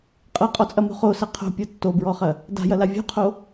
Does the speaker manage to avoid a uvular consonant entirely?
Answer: no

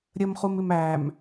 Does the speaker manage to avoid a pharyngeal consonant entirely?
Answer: yes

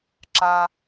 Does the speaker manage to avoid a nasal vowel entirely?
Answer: yes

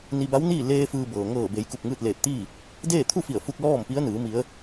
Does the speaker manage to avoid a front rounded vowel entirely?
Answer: yes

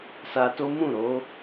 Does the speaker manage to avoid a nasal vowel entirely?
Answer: no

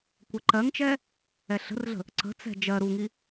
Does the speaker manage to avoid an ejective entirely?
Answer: yes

